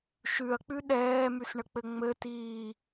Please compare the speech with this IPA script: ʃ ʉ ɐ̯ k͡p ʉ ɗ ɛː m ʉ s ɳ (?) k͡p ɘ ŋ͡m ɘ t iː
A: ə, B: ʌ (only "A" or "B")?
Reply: A